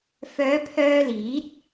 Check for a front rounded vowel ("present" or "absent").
present